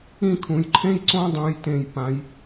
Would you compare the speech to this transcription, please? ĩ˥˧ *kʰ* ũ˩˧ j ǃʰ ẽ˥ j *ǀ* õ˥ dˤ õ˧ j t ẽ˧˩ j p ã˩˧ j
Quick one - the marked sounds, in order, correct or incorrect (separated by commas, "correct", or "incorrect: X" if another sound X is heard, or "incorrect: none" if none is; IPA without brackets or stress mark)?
correct, correct